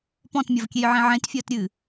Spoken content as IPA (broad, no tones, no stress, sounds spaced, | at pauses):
p ɔ̃ t mʲ ɐ v kʲ e j ʕ ẽ ʕ ẽ t fʲ ɐː t ɾʲ ɨː